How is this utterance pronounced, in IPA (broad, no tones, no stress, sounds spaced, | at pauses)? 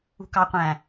ṳ k ɑ qʷ æ̃